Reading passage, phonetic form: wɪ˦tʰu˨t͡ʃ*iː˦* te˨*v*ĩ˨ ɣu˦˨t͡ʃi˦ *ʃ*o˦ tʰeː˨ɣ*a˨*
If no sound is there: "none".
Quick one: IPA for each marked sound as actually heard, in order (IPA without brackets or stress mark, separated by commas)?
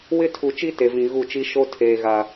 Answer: i˦, v, ʃ, a˨